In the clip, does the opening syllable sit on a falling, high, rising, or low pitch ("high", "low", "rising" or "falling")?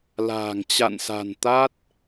low